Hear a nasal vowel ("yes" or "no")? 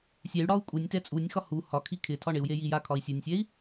no